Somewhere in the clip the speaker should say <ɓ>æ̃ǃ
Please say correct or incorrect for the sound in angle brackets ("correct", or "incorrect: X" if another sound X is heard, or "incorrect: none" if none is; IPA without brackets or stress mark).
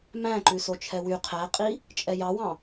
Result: incorrect: m